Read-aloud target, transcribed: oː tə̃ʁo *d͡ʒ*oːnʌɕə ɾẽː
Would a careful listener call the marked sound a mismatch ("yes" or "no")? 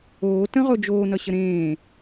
no